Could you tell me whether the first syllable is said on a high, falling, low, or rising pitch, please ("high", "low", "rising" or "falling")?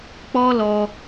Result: high